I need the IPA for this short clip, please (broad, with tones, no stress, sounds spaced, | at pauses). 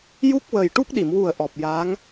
j u˦˥ k̚ w ə˨˩ j ʈ u˦˥ k̚ ɗ i˨˩˨ m w u˨˩ ə̯ ʔ ɔ˨˩ p̚ j a˧˥ ŋ